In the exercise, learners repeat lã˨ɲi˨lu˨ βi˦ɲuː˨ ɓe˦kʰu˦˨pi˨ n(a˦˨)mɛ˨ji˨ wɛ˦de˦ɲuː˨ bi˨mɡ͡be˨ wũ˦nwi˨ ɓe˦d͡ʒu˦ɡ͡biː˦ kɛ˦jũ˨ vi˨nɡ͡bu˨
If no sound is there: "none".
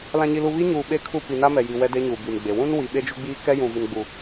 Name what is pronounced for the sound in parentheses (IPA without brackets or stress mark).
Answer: a˦